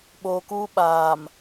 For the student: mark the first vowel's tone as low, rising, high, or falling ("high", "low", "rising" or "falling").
low